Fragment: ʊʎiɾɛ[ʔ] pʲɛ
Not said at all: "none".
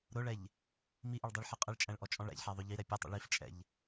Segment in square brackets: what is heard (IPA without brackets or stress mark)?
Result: none